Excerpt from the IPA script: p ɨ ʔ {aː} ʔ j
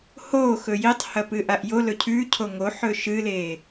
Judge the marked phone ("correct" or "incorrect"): incorrect